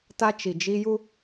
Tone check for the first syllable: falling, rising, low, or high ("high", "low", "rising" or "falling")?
high